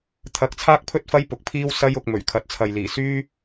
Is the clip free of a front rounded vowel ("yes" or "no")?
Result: no